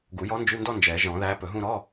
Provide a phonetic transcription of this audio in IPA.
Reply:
ɡu˨˩˦jɔ˧˥nd͡ʒʉ˧˥˧ndɔ˥˧ nd͡ʒɛ˨˩˦ʒɔ̃˨˩˦ðæ˧˥ pɵ˨˩˦ɦũ˥˧ ɾɔ˧˥˧

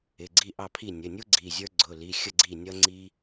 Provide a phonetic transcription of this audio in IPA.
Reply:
ɪ˩˧˩ ɡ͡ǀi˥˨ʔɑ˥˨pʰi˥˨ nʲə˩˧˩nʲu˥ ɡ͡ǀi˩˧˩zʲə˞˥ ɡ͡ǀʊ˩˧˩li˩˧˩xʲə˥˨ ɡ͡ǀi˥˨nʲʌ˥ŋ͡ǀi˥

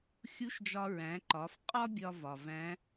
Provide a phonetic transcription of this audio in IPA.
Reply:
xʲu˧˥ʃd͡ʒɒ˧ɹæ̃˩˧ ǃɒ˩˧f qʼɒ˥bʲɒ˧ vɒ˩væ̃˧˥

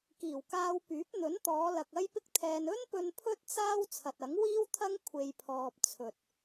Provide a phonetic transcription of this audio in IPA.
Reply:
kiː˨˩wkaː˧wpyː˨˥p̚ n̪ɵ˨˥nt̪ɔː˨˧lɐ˨k̚ ɐ˥jpɪ˥k̚t̪ʰɛː˧n ɵ˥npɵ˧n pʰɵ˥t̚ t͡saː˥w t͡sʰɐ˨t̚ɐ˨˥ŋ wiː˥wt̪ʰɐ˥ŋ kʷʰe˧jpʰɔː˧p̚ t͡sʰɵ˨t̚

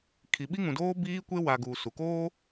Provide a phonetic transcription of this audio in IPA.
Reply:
kʰi˨ɓi˦ŋũ˨doː˦ biː˦kʷe˦ wa˨ ɡuː˨su˨ koː˦

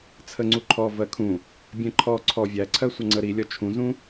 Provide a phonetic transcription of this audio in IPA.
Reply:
t͡sʰəŋ͡ǀuǃʰɔ vɜkʰũ | bʲɛ̃ǃʰɔ ǀʰɔ vʲæǀʰɜsʷʌ ŋ͡ǀəɾilʲɒ t͡ʃʰũzũ

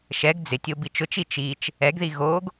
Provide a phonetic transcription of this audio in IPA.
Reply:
ʃɛɡ d͡zɪtʲo bit͡ʃʊt͡ʃi t͡ʃit͡ʃ | ɛɡði ɣoɡ

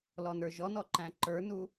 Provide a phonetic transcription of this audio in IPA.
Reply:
lɔnə˞ʒɔnɔ ǃæ̃ǃə˞nu

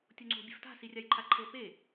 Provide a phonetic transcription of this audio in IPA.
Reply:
tʲoŋ͡ǀo̤ bʲe̤fta̤ sirʲajǃʰaǃʰɤ pe

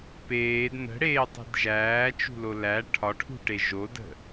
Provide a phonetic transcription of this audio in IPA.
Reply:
peːd nə̤ɽeːtˤi̤d ʒæːt͡ʃṳlo læ ʈʰɒʈʰṳʈe ʒodə̤

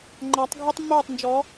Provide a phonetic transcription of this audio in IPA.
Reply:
ŋ͡ǃa˨˦tˤ ɡʱu˦tˤmːoː˦˨tˤnd͡ʒɔː˨˦

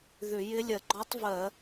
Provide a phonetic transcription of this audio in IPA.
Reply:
ðʏ˧˩˧ jɪ˧˥lʲɜ˧˩˧ɡ͡ǃɔ˧˥tˤ vɜ˧˩˧

